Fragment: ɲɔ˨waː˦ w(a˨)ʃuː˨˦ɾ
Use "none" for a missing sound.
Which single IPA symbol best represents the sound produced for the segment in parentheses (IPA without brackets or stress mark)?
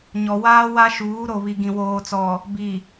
a˦